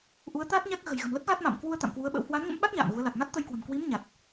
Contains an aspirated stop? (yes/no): no